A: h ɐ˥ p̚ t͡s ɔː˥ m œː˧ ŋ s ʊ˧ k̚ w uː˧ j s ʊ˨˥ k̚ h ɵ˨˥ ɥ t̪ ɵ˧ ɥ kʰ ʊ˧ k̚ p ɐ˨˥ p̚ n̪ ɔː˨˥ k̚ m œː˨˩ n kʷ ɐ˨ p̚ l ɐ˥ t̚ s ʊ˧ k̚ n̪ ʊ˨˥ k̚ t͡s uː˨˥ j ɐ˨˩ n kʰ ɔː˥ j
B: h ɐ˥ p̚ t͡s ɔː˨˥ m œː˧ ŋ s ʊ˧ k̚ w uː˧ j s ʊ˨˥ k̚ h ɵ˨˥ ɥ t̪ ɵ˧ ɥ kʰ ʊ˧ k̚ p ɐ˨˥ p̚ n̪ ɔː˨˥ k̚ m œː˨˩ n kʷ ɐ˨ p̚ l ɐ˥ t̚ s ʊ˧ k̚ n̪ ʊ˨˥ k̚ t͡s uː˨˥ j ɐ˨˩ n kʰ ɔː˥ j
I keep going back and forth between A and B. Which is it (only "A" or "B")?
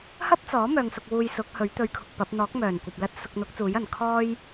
B